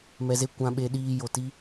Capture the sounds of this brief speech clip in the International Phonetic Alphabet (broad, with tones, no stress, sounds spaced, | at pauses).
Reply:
m ɛ˧ z e˦ kʷ ã˧ ɓ e˧ ɗ iː˧ j o˨ t i˦